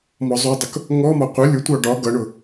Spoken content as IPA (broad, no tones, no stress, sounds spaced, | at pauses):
m ɔ zˤ u dˤ ʊ k | ŋ ɔ m ɒ qʷ ə lʲ ʊ tʷ ɑ ɖ ɒ ɡ ʌ ɳ ʊ